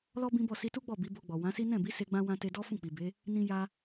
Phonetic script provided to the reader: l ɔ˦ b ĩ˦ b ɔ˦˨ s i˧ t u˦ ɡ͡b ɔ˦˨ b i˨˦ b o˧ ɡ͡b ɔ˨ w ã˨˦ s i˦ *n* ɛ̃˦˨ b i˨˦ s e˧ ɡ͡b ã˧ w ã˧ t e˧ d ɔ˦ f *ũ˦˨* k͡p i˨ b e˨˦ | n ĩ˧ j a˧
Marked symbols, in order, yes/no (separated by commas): yes, yes